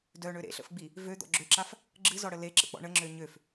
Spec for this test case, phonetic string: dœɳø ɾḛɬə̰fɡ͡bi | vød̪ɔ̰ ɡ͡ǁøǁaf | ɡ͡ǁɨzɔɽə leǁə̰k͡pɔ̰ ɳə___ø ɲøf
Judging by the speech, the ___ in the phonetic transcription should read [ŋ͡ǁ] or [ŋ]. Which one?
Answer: ŋ͡ǁ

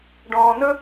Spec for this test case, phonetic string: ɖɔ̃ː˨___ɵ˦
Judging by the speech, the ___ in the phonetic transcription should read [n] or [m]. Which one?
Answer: n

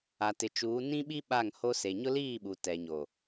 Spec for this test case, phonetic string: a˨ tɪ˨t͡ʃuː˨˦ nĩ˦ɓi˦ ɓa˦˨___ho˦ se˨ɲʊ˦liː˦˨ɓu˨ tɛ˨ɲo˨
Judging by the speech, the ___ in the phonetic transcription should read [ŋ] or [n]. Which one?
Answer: ŋ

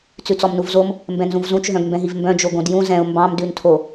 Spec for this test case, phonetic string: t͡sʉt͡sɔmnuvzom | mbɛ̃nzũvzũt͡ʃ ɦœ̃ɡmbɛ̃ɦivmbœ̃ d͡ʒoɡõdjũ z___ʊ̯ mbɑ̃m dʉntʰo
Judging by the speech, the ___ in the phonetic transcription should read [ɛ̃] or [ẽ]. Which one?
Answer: ɛ̃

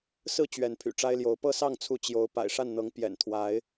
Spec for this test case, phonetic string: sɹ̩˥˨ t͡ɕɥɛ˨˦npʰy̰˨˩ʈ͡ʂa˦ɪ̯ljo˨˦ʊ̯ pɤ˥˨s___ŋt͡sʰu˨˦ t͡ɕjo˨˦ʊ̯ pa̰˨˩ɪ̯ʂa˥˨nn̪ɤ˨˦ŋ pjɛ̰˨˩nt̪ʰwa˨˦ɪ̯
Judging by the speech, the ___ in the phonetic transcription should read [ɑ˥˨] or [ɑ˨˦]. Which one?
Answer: ɑ˥˨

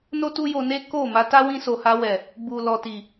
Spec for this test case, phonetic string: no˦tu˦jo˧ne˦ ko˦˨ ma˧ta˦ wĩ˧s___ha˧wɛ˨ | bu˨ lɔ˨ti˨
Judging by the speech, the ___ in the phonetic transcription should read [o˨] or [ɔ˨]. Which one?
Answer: o˨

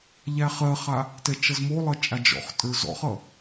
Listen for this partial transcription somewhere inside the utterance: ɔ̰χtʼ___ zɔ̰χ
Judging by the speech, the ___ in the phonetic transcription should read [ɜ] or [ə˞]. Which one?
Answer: ə˞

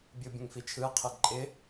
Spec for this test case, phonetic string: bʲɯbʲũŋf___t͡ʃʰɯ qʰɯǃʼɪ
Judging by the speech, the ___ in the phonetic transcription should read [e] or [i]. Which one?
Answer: i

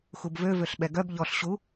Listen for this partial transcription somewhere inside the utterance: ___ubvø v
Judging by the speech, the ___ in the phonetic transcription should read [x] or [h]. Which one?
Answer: x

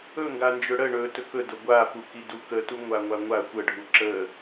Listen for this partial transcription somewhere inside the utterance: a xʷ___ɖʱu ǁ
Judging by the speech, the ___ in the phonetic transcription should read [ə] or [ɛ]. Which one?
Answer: ə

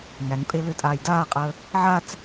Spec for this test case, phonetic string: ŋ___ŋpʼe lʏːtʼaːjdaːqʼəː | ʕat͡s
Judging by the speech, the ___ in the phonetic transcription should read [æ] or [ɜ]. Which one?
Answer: æ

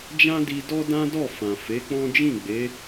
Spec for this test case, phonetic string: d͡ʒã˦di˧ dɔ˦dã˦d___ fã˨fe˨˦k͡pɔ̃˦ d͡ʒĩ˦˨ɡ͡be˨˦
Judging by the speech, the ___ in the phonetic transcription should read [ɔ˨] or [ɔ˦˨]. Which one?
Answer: ɔ˦˨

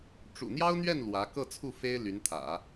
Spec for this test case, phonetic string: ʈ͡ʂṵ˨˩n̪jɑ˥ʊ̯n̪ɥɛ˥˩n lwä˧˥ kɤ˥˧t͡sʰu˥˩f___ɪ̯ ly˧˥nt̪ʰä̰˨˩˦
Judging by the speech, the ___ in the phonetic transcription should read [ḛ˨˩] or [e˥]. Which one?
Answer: e˥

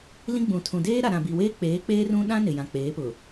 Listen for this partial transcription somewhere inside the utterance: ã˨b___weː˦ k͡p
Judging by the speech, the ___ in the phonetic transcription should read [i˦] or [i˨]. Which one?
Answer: i˨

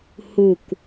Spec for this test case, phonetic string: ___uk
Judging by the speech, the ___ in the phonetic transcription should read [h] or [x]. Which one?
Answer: h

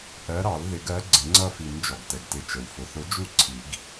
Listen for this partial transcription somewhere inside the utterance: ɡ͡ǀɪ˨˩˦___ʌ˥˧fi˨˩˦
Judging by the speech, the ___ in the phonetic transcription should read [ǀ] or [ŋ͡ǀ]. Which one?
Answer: ŋ͡ǀ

